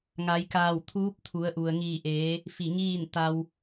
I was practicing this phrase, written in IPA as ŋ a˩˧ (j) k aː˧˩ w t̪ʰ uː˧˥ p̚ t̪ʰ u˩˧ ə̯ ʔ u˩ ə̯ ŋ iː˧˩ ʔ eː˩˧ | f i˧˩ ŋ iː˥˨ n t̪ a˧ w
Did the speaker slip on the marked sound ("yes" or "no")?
no